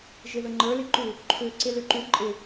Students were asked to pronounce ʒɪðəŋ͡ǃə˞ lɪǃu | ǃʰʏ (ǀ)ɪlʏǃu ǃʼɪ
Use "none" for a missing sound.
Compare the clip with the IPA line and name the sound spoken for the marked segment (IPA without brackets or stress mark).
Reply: ǀ